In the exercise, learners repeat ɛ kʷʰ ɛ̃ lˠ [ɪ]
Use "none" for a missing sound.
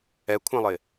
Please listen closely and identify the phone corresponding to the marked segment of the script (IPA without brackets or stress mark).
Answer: ɪ